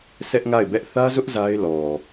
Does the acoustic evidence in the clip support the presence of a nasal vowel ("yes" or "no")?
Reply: no